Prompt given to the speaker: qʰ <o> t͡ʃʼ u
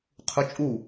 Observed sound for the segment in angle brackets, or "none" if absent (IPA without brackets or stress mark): u